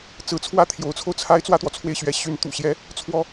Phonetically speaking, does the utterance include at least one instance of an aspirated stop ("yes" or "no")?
yes